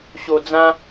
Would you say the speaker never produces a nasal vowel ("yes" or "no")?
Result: no